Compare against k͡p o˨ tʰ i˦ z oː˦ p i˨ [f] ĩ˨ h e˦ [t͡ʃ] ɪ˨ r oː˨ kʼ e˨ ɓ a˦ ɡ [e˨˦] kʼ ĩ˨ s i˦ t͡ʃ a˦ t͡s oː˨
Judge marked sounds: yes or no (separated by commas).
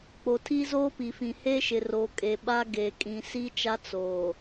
yes, no, no